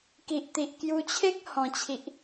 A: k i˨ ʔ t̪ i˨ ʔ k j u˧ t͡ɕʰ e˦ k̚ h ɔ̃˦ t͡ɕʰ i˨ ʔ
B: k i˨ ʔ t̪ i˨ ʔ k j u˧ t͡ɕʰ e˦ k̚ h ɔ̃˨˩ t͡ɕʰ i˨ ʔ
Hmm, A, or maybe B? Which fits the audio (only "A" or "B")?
B